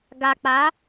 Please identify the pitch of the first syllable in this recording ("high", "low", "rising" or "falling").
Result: low